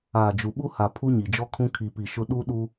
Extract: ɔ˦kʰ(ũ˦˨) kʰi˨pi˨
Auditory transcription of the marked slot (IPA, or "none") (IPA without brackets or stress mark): ũ˦